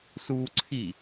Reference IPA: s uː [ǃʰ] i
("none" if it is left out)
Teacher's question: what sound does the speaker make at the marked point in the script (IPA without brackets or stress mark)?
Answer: ǀʰ